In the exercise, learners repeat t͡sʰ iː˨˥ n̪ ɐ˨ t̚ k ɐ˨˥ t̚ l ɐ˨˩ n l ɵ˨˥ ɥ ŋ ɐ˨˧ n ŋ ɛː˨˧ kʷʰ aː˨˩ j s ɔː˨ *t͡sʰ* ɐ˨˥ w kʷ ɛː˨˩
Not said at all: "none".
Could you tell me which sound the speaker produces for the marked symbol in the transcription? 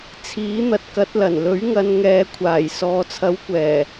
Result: t͡sʰ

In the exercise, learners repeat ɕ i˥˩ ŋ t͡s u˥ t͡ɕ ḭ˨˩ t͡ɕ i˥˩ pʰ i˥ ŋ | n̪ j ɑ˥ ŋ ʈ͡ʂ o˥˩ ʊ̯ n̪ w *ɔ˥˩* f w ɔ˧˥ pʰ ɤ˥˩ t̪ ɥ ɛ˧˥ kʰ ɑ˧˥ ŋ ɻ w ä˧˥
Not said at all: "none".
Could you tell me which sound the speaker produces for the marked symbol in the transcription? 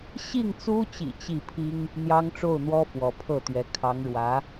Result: ɔ˥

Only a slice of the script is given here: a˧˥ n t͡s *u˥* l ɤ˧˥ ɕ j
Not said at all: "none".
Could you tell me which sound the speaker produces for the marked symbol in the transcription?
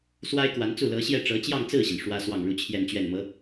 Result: u˥˩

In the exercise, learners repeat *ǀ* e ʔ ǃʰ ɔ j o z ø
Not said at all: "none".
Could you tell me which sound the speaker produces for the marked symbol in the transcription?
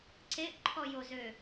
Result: ǀ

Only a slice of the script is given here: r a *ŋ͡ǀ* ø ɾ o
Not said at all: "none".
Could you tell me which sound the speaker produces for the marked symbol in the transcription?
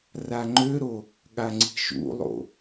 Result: ŋ͡ǃ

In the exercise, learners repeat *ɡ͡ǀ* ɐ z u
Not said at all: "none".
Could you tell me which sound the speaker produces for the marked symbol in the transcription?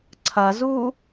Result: ǀʰ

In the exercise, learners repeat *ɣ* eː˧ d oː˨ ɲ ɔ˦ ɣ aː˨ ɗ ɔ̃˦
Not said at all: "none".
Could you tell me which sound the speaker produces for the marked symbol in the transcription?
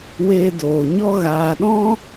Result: w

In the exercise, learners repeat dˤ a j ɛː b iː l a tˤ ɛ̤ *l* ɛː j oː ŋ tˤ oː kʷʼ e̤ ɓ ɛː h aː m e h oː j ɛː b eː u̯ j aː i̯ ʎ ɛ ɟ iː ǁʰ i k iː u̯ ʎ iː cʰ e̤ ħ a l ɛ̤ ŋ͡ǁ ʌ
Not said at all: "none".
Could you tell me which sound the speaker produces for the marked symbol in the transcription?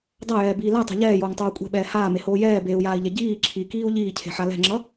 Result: ʎ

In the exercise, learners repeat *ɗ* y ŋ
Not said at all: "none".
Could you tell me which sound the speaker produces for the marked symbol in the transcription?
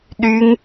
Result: ɗ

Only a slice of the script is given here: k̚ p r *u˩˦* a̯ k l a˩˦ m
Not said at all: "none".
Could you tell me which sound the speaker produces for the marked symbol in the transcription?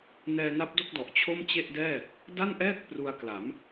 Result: u˧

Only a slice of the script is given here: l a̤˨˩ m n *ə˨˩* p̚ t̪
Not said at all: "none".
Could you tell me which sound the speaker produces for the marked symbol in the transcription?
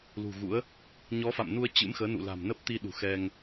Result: ə˦˥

